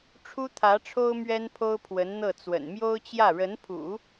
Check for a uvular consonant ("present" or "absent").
absent